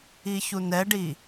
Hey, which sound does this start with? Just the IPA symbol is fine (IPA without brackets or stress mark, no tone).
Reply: i